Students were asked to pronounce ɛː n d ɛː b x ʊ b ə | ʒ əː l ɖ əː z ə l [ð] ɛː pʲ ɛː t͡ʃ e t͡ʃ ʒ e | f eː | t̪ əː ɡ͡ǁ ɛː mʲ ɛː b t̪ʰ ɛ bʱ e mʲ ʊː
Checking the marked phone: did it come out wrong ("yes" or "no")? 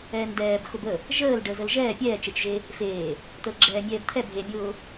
yes